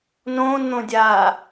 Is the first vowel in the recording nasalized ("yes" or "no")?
yes